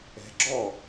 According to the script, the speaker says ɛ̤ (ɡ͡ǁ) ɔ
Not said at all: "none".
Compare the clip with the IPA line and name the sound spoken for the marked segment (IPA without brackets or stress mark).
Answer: ɡ͡ǁ